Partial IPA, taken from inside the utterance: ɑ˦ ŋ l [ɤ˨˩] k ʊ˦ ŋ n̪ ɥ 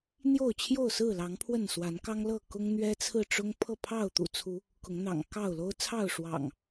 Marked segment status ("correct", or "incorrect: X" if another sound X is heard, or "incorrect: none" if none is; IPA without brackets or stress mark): incorrect: ɤ˥˨